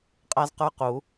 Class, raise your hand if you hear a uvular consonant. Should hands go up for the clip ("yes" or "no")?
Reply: yes